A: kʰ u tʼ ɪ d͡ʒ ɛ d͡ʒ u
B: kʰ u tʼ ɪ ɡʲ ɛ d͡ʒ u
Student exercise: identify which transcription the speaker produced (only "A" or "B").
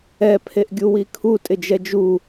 A